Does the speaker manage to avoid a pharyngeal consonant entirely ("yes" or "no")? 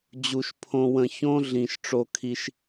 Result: yes